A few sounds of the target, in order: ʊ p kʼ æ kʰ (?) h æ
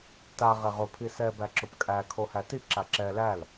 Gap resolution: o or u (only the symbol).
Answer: o